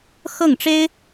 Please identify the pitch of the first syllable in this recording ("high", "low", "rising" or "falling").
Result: falling